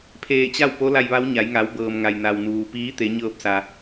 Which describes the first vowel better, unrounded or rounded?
unrounded